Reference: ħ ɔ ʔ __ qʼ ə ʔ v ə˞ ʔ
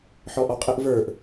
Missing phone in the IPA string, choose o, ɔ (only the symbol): ɔ